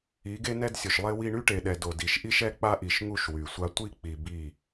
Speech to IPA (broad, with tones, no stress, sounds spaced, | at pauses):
i˨˦ ɡ e˦ n ɛ˦ d sʲ o˨ ʃ lˠ e˦ w i˦ ɳ y˦ ʈ e˨ ɗ ɛ˨ d o˨ d i˨ ʃ ʔ i˦ ʃ ɛ˦ k͡p a˦ ʔ i˨ ʃ ŋ u˦˨ ʃ w y˨ sʷ a˦ tʷ i˦ k͡p i˨ b i˦˨